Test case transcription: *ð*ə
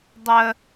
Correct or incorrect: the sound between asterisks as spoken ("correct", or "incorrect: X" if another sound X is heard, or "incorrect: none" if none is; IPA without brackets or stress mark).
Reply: incorrect: dˤ